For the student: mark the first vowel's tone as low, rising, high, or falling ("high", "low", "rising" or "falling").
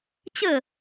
falling